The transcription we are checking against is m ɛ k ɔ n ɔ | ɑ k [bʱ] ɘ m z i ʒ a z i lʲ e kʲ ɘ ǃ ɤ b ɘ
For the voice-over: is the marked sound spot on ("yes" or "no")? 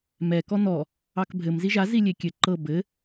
yes